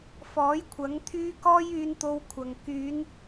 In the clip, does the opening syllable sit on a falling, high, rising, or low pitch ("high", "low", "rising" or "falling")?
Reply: rising